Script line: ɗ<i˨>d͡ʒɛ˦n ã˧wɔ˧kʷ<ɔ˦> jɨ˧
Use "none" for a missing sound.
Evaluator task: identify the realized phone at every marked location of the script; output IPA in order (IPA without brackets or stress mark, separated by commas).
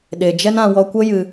e˨, ə˦